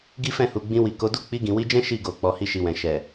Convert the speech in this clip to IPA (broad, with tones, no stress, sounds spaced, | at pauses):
ɡ i˦ f ɛ̃˦˨ h u˨ ɡ͡b ĩ˧ w i˨ k o˨˦ d u˦ k͡p i˧ ɡ ĩ˨ w i˧ d͡ʒ ɛ̃˦ ʃ i˦˨ ɡ o˨ k͡p ɔ˨˦ h i˦ ʃ i˧ w ɛ̃˨ ʃ ɛ˨